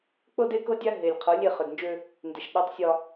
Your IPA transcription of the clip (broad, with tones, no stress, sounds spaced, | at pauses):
k͡p ɤ˦ d e˦ k ɤ˦ dʲ a˦ ɦ e˨ lʲ qʰ ɤ˨˦ lʲ e˦˨ χ ø˨ d n d͡ʒ ø˦ | n d e˨ ʃ ɗ ɒ˦ tˤ sʲ ɒ˦